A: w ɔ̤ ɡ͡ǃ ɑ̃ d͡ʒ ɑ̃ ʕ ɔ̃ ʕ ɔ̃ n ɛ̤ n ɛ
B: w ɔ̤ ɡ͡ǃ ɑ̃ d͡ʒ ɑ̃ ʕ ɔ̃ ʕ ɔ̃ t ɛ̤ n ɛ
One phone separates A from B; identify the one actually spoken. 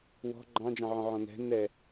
A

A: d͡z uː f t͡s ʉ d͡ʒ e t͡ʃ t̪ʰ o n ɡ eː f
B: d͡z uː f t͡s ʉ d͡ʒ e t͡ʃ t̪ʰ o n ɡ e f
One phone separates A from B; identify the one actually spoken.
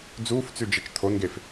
B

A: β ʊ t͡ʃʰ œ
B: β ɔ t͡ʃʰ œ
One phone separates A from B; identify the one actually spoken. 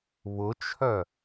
A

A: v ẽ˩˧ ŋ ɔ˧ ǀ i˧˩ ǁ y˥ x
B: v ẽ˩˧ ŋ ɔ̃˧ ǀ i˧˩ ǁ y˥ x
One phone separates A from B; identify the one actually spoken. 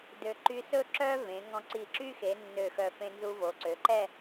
B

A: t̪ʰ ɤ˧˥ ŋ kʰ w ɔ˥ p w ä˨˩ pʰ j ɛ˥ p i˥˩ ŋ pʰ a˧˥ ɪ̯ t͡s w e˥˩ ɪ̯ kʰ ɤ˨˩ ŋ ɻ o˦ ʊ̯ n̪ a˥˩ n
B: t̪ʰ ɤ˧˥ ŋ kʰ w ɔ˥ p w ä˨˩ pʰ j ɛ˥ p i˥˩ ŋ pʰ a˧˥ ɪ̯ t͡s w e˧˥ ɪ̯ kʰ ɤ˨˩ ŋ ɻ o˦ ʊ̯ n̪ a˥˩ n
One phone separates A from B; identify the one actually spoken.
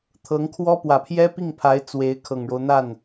B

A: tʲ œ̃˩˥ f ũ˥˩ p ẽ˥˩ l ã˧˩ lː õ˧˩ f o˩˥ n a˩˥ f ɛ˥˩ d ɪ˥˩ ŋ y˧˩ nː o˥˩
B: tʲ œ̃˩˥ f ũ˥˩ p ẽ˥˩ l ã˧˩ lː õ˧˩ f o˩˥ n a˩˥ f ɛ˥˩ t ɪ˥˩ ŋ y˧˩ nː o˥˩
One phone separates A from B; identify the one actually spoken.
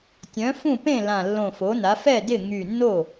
A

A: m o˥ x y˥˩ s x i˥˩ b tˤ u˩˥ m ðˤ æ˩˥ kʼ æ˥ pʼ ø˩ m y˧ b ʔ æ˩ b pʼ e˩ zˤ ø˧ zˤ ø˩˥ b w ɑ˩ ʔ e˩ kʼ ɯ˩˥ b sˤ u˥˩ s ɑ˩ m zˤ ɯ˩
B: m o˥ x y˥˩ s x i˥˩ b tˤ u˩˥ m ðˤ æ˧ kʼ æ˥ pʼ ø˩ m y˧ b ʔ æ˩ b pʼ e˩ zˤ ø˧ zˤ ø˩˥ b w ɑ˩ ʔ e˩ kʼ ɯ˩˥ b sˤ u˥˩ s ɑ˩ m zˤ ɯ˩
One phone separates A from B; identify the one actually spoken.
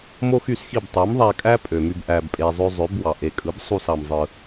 B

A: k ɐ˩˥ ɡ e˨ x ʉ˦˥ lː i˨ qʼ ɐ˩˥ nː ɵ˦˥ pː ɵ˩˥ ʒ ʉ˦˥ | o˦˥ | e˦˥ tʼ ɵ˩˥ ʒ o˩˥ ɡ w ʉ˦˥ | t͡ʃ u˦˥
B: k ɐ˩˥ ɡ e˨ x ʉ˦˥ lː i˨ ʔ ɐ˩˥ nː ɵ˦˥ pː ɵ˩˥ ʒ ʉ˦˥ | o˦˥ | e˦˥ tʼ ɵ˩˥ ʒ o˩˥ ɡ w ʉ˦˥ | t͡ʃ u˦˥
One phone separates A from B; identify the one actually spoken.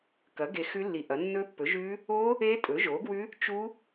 B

